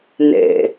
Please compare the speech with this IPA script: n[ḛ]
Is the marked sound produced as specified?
yes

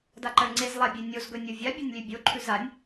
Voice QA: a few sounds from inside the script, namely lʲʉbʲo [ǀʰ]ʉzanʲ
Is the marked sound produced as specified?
no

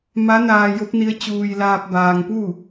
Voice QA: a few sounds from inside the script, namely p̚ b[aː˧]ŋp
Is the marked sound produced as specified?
yes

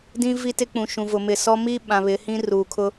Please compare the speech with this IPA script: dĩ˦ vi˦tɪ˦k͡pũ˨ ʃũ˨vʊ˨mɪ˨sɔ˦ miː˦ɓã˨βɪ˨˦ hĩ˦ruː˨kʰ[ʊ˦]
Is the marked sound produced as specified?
yes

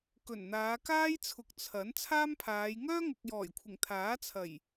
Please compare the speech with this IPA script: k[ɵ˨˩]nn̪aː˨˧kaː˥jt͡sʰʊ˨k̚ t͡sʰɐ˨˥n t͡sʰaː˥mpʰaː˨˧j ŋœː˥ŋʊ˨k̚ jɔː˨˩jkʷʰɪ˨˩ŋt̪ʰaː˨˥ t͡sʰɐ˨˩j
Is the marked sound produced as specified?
yes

